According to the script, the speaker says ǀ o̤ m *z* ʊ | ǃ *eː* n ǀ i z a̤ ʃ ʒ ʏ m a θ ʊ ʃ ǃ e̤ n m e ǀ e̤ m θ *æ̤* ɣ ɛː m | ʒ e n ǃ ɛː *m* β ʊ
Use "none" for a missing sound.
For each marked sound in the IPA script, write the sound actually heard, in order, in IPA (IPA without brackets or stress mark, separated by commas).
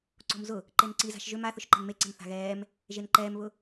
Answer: z, e, a̤, m